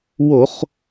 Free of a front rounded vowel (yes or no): yes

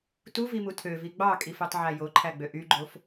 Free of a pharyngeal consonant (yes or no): no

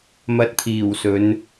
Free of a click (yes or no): yes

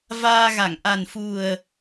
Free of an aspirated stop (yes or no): yes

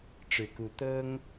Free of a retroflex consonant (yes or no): no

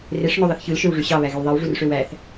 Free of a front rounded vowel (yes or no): no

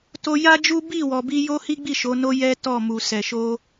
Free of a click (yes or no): yes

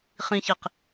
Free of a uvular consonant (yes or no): no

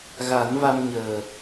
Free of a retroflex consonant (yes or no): yes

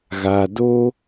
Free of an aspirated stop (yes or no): yes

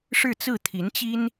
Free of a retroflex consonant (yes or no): no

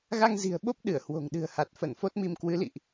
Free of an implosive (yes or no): no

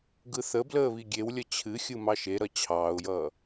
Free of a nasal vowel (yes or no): yes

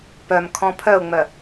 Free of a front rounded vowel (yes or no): no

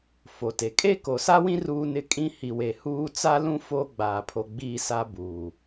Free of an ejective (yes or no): no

